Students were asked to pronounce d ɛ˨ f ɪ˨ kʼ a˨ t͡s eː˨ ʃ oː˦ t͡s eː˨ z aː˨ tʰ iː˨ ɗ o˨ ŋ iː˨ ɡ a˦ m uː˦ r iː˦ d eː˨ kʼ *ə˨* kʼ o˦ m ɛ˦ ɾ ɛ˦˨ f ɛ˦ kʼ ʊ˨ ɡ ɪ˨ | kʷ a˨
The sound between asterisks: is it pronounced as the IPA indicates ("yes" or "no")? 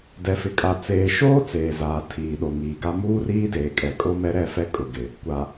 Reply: no